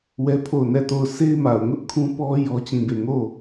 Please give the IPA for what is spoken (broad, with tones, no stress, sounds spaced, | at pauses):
w ɛ˦ pʰ o˦˨ ʊ̯ n ɛ˦˨ t o˦˨ ʊ̯ sʰ e˦ ɪ̯ m a˨ ʊ̯ ŋ ʊ˦ ʔ kʰ ũ˦ p ɔ˦ j ɔ˦ t͡ɕ ĩ˦˨ b e˦˨ ŋ o˦˨